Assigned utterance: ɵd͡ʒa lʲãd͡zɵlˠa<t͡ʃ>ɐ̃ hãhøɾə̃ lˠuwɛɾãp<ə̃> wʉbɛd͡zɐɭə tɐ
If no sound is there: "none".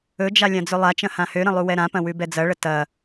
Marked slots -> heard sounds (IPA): t͡ʃ, ɐ̃

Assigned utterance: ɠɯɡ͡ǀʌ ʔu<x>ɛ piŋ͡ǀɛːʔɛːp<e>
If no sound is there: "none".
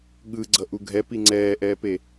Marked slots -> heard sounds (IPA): ɡʱ, e

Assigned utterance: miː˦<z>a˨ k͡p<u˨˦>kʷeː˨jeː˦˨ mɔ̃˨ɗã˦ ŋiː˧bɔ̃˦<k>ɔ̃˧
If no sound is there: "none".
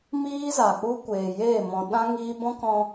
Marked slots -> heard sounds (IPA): z, u˦, k

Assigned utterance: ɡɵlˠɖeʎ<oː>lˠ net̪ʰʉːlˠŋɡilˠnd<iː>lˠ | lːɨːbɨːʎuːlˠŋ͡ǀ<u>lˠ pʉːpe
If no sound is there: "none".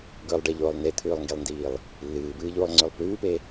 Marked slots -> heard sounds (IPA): oː, iː, ʉ

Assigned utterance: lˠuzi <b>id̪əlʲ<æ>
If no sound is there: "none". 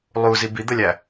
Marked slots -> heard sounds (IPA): b, æ

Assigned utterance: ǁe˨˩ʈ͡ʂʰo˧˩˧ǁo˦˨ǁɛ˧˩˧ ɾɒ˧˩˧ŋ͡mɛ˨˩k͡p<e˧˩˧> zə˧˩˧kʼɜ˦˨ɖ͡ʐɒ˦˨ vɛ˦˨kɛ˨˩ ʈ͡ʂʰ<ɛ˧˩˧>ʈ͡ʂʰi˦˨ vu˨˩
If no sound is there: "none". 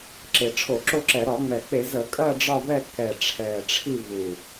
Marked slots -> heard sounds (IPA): e˧˩˧, ɛ˨˩

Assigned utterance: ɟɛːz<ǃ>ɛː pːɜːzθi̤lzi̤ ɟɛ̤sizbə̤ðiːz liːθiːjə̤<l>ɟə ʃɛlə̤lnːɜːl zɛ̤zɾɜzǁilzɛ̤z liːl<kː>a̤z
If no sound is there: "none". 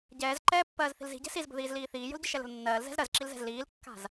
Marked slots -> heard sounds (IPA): ǃ, l, kː

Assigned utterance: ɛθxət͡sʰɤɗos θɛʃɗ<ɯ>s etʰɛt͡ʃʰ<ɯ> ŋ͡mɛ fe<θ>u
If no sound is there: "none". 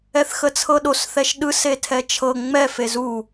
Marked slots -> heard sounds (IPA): ɯ, ɤ, z

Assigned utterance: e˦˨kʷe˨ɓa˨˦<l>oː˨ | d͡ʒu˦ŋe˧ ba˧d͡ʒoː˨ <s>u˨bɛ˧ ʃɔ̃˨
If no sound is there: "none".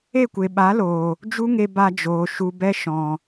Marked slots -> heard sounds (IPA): l, ʃ

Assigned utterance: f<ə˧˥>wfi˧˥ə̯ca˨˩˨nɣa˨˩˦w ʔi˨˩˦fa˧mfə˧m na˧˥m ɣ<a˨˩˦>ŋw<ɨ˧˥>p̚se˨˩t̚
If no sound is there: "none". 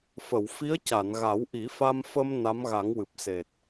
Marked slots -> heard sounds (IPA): ə˨˩˨, a˨˩˦, ɨ˨˩

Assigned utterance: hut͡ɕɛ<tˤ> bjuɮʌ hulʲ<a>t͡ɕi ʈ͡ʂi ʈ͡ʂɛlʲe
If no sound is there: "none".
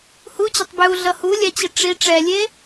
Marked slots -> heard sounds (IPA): tˤ, a

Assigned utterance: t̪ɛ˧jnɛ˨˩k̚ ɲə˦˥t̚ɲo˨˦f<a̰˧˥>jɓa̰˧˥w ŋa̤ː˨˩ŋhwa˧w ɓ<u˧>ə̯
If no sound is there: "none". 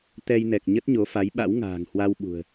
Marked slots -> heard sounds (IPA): a˨˦, ṳ˨˩

